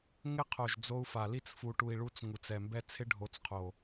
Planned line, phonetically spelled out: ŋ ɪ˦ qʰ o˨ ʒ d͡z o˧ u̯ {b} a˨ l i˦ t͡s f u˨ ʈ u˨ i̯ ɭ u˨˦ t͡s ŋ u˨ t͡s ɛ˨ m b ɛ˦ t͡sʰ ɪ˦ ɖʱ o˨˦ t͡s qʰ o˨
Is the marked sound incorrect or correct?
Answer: incorrect